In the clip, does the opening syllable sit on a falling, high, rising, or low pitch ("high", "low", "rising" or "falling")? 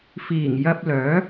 low